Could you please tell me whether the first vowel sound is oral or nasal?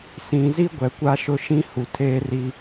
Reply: nasal